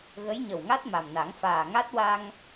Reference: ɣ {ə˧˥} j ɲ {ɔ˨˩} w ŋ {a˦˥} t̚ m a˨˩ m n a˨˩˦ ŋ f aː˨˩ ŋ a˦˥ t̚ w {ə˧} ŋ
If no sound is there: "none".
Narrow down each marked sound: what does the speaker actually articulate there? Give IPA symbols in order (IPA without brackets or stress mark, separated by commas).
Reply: ə˧˥, ə˨˩, a˦˥, a˧